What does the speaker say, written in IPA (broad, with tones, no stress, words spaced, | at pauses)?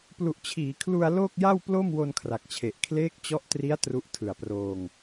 plu˨˩ʔt͡ɕʰiː˩˦kʰlu˧a̯ loː˥˩k̚ja˥˩w plo˥˩mwo˧n kʰra˨˩k̚t͡ɕʰe˨˩ʔ kʰleː˦˥k̚ t͡ɕɔ˦˥ʔtri˦˥a̯ tru˦˥ʔtʰɯ˨˩a̯proː˧ŋ